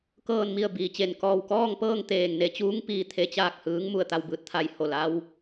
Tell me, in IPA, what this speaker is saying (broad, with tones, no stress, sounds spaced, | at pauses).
k ɤː˧˩ n m i˧˩ ə̯ b iː˩ t͡ɕ e˧˩ n k ɔː˧˩ w k ɔː˥˨ ŋ p ɤː˥˨ ŋ t̪ eː˧˩ ŋ n e˧ t͡ɕ uː˧˥ ŋ p iː˧ t̪ʰ e˧ t͡ɕ aː˥˨ k̚ h ɯː˧˥ ŋ m u˧˩ ə̯ t̪ a˥˨ w b ɯː˧ t̚ t̪ʰ a˧ j h o˧˩ l a˧ w